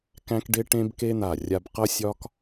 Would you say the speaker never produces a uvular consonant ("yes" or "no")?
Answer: no